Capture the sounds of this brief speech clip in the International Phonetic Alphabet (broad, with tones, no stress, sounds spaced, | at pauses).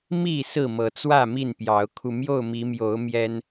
m i˥˨ s ɹ̩˥˨ m ɤ˨˦ t͡s w ä˥˨ m i˥˨ n p j ɑ˨˦ ʊ̯ kʰ u˧ m j o˥˨ ʊ̯ m i˨˦ m j o˨˦ ʊ̯ m j ɛ˦ n